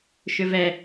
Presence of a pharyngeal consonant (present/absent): absent